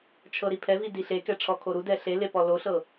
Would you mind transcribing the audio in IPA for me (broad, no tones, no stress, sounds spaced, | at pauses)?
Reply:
t͡ʃʰ ɤ ɾ i pʰ ɛ v i d i ɬ e k ɛ ʈ͡ʂʰ ɔ kʰ o ɾ u d ɛ ɬ e l e p ɔ l o ɬ ɤ